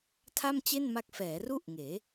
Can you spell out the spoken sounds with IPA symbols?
tʰ a˥˩ m t͡ɕ e˥˩ n m a˦˥ k̚ f ɛː˩˦ r u˥˩ ʔ ŋ eː˩˦

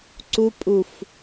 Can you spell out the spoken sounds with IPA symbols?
ǀ u pʼ u f

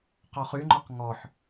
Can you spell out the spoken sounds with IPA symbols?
q ɔ χ y ŋ͡ǃ ɔ q ŋ ɔ ħ

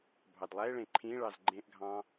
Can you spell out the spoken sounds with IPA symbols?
bʱ ɑ d lˠ æ e̯ ɭ ẽ ǃʰ ĩ ɭ ɑ z ɡ͡ǃ ẽ ʔ ɡʱ ɑ̃

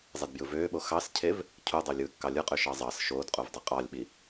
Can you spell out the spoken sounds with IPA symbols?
zˤ e d b j ɯ v øː ɓ o x ɑ s cʰ e v | cʰ u dˤ ø lʲ ɯː kː ɑ lʲ ɯ qʼ ø ʃ ɑ zˤ ɑ s ʃ oː d qʼ u v dˤ i qʼ ɑ lʲ ɓ i

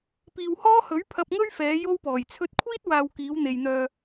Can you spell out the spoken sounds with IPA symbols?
p iː˨ w h ɔː˥ h ɵ˨˥ ɥ pʰ ɐ˧ p̚ ŋ ɵ˥ ɥ f ɛː˨˧ j o˥ w p ɔː˨˩ j t͡sʰ ɵ˧ t̚ kʷʰ iː˥ t̚ w aː˨ w k iː˨˧ w n̪ e˨ j n̪ œː˧

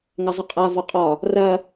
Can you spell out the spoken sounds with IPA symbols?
ŋ ɐ zˤ ə qʼ a v ɒ qʼ ɒ | r ɐ

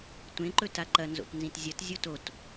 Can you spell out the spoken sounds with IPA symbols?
tʷ ẽ ǃ ɵ t a ǃ ɐ n z o̰ t n z ĩ t zʲ ɐ t zʲ o t o t

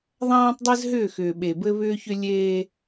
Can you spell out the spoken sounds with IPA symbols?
ðˤ ãː˦ tˤ dˤ ɘ˦ z ɦ ʏː˦˨ x ʏː˨ ɓ e˨ b ɘ˦ β ʏː˦ ç ʏ˦ lʲ eː˦

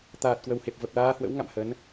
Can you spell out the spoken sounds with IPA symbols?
t̪ aː˨˩ t̚ k w ə˨˩ w h e˨˩ p̚ v ə˨˩ p̚ l aː˧ h w ə̰˧˥ w ŋ a̰˧˨ m h ə˨˦ n

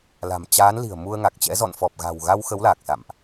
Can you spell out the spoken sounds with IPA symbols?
l a̤˨˩ m t͡ɕ aː˨˦ n l i̤˨˩ ə̯ m u˧ ə̯ ŋ a˨˩ k̚ t͡ɕ ɛ̰˧˥ z ɔ̰˧˨ n f ɔ˨˩ p̚ ɣ a̤˨˩ w ɣ a˧ w x ə˨˦ w l a˨˩ k̚ s a̰˧˨ m ʔ

